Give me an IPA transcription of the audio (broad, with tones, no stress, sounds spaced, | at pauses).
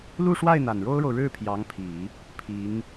l u˥˧ ʂ w a˥˩ ɪ̯ n̪ a˨˩ n ɻ o˥ ʊ̯ ɻ o˨ ʊ̯ ɻ ɻ̩˥˩ pʰ j ɑ˧˥ ŋ pʰ i˨˩˦ | pʰ i˧˥ ŋ